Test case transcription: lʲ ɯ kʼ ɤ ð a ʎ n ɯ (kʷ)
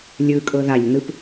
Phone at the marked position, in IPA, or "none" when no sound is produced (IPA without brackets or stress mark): p